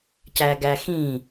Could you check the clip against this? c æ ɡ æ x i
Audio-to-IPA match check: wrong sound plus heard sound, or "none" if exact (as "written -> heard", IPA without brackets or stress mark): i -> ĩ